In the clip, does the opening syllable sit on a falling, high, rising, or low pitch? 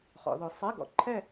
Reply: rising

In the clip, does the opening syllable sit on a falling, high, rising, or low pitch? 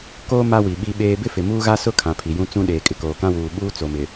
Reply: high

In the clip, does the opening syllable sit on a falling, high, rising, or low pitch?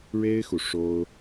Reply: high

